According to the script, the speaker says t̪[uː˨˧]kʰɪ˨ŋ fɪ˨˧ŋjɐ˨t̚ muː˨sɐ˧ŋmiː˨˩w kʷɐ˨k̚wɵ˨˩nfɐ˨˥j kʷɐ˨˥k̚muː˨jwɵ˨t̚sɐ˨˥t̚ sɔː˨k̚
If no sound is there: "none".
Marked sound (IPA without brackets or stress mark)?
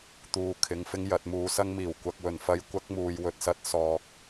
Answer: uː˨